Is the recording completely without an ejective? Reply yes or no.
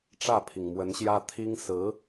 yes